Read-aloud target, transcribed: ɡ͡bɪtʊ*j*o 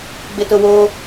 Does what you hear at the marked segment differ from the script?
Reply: yes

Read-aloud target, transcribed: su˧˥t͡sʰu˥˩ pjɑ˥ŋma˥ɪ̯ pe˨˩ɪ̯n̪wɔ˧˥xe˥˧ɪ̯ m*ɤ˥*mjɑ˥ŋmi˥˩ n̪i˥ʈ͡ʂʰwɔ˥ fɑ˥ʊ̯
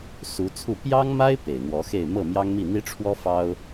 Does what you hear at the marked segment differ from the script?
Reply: yes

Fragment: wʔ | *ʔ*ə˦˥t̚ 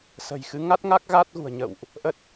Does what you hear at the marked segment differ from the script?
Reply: no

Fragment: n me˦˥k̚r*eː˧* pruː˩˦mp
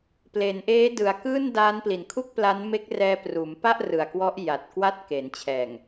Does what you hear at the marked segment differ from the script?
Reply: yes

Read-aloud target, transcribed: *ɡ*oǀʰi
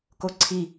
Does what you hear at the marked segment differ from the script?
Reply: yes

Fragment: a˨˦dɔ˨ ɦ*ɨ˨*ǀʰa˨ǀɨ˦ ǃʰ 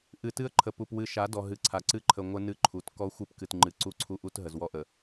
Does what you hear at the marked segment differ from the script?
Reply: no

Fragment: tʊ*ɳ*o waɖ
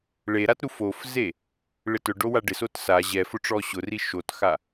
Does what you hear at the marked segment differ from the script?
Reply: yes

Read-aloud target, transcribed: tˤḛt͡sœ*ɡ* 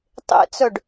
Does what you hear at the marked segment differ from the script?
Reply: yes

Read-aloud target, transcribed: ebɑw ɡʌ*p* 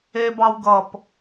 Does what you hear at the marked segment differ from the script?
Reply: no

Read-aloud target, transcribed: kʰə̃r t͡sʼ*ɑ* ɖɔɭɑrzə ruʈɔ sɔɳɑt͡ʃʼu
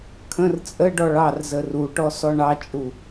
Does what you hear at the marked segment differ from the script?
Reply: yes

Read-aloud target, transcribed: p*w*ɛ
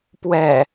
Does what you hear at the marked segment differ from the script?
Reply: no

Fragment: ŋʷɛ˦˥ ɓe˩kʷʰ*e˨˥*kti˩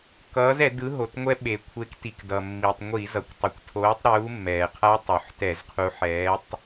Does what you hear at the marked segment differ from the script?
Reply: no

